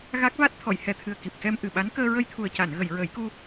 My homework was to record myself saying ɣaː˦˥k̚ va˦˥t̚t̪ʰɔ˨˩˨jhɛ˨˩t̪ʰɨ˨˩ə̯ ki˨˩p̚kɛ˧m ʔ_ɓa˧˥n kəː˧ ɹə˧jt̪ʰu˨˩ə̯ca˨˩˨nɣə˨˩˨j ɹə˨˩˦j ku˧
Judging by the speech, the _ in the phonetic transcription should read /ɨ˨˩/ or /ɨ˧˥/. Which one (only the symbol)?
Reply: ɨ˨˩